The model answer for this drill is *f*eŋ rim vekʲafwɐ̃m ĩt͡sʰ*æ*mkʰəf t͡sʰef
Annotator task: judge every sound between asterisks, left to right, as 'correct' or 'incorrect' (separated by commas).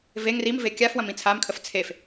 incorrect, incorrect